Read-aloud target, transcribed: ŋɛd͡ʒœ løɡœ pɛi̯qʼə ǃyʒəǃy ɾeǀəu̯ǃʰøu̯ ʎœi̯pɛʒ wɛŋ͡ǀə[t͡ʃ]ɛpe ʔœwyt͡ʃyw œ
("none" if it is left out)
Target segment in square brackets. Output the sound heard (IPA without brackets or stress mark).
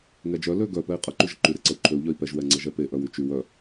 ʒ